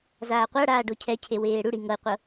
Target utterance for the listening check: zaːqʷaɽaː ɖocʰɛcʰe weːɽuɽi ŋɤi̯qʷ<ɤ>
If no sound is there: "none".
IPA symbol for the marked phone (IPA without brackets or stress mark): ɤ